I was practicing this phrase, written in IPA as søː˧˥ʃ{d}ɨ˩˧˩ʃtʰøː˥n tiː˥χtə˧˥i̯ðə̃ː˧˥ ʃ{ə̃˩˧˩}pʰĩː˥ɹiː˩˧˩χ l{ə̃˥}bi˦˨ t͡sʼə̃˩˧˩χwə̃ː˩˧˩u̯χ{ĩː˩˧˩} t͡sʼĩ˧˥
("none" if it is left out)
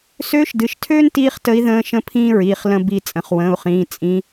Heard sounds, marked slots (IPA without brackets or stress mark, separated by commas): d, ə̃˥, ə̃˥, ĩː˩˧˩